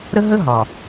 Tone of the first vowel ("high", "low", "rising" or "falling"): high